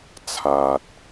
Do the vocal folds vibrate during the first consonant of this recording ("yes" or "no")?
no